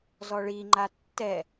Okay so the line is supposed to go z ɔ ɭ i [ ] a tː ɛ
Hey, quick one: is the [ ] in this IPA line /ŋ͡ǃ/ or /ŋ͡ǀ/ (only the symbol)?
ŋ͡ǃ